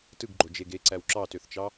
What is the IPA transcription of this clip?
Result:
t ɯ ɡ ɡ͡ǃ o d͡ʒ e ɡ e ǀ æ w ǁ ɑ t ø θ t͡ʃ ɑ

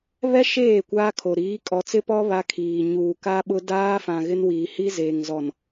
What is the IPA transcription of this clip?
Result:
β ɛ˦ ʃ eː˦˨ kʷ aː˦ kʰ o˨ ɾ iː˨˦ kʼ ɔ˨ t͡s ɪ˦ p ɔ˦ β a˦ kʰ iː˨ ɲ uː˨ k a˦ ɓ ʊ˦ d aː˦ f ã˨ ɣ ɪ˦ n w iː˨ h i˦ z eː˨ ŋ z ɔ˨ n

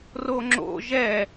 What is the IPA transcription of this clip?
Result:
r o ŋ͡ǁ o̰ ʒ ɛ

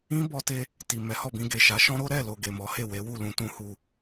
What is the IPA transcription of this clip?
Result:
ĩ˦ b ɔ˧ t e˧ | t i˨ m ɛ˨˦ h ɔ˦˨ b ĩ˧ ɡ e˨ ʃ a˨˦ ʃ ɔ̃˦ ɾ o˦ ɾ ɛ˦˨ l o˨ ɡ e˨ m ɔ˨˦ h e˦˨ w e˨˦ w u˦˨ l ũ˧ t ũ˧ h u˨

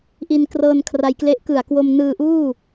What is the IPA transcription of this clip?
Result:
ʔ i˧ n k r ɤː˧ n kʰ r a˧ j k l e˦˥ ʔ k ɯ˨˩ a̯ k w o˧ m n ɯː˧ ʔ uː˥˩

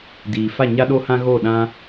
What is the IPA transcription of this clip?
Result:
d iː˨ f a˦˨ ɲ a˦ ɗ o˦ h ã˦ ɣ o˦˨ ɗ ã˦

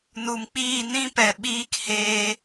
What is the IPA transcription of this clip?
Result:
n u˨ m k͡p iː˦˨ n ĩ˦ p ɛ˨ ɓ iː˦ k h eː˧

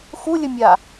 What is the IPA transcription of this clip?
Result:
x u lʲ ə mʲ a

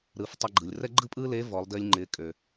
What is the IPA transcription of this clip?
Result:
ɾ ɯː˩˧ f tˤ ɛ˧ ɡ͡ǃ ɯ˩ lʲ r ɛ˥ ɡ͡ǃ ɯ˥ pʼ ɯː˥ l e˧˥ v ɔ˩˧ lˠ d ɪː˧ lʲ ŋ͡ǃ ɪː˩˧ kʼ ø˩

